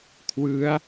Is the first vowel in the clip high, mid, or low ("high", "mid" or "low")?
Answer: high